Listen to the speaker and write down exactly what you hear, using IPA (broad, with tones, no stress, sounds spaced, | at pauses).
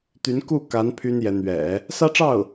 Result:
t̪ y˧˥ n k u˥˩ k a˧˥ n pʰ y˥ n j ɛ˧˥ n̪ ɥ ɛ̰˨˩˦ | s ä˥ ʈ͡ʂ ɑ˥˩ ʊ̯